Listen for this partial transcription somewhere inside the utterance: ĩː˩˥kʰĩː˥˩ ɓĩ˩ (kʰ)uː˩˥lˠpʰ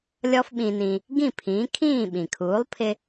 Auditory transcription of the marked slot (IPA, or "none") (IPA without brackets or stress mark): kʰ